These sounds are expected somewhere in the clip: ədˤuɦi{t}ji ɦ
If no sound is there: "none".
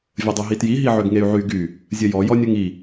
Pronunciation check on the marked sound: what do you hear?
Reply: t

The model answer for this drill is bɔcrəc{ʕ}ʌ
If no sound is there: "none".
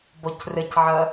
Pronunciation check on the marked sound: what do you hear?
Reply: ʕ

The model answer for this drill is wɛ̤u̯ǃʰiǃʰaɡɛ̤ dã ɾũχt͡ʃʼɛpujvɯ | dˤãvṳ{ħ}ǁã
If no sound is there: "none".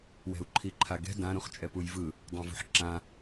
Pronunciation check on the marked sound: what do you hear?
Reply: ħ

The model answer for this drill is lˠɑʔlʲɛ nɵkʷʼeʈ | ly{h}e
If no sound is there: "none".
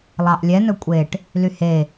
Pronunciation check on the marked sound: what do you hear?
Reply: h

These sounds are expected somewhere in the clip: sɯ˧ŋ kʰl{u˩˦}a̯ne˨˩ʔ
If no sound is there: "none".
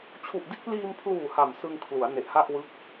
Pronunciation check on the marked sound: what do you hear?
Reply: u˩˦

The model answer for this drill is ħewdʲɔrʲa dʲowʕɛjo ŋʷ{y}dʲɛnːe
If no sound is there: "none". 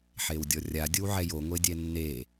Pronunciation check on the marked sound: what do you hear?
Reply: e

